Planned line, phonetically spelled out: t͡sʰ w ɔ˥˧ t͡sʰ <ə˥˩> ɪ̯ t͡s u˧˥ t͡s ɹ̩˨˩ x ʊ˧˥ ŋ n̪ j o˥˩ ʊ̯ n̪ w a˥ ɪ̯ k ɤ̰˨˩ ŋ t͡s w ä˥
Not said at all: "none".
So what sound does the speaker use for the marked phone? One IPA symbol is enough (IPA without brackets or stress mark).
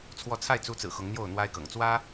a˥˩